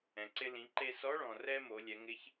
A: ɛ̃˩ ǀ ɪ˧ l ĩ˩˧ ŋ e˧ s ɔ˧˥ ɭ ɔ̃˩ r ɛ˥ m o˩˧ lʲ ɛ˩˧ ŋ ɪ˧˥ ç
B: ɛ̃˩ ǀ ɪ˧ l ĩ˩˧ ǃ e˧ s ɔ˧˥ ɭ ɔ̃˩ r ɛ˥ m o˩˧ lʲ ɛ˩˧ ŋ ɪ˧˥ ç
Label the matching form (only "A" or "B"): B